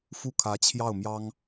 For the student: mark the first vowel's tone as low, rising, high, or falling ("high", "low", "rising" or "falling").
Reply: falling